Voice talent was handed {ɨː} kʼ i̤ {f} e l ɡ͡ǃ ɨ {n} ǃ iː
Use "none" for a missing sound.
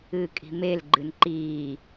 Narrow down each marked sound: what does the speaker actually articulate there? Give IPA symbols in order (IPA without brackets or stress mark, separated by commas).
ɨː, m, n